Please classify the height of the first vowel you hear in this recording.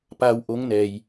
low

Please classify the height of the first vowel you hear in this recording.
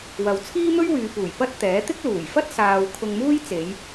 low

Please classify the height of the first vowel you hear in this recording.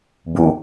high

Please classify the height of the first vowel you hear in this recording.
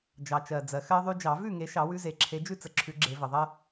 low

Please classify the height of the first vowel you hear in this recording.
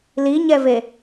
high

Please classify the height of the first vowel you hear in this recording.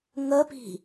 mid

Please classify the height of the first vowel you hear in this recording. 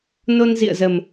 mid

